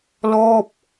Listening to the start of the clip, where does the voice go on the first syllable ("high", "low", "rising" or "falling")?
falling